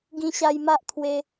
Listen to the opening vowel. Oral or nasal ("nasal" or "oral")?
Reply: nasal